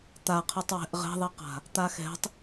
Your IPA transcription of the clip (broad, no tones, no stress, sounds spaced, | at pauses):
t̪ a qʰ ɯ tˤ w ɛ̤ ʔ ʁ ɛ̤ ðˤ i q a̤ | t̪ a x ɛ̤ tˤ